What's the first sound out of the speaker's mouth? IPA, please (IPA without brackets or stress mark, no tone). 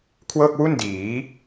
kʰ